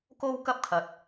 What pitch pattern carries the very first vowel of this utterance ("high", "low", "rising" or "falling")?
high